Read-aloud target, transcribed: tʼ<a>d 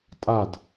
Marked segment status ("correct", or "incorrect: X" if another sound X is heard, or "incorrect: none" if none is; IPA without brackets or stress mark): correct